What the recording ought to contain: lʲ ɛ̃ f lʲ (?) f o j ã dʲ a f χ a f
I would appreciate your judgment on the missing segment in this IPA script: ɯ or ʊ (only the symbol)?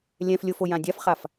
ʊ